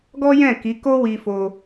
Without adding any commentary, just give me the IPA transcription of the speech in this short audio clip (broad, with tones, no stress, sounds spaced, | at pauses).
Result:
ɡ ɔ˦ j ɛ̃˦˨ k i˨˦ k o˦ w i˧ f o˧